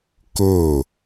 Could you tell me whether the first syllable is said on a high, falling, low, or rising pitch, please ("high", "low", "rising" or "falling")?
falling